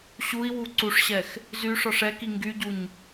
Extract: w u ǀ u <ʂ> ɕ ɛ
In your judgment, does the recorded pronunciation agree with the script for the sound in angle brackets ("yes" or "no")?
yes